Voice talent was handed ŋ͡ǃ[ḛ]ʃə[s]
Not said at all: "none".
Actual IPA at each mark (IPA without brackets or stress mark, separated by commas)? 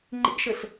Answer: ḛ, ɬ